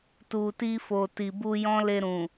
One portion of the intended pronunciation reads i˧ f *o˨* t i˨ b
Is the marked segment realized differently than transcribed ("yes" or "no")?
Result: no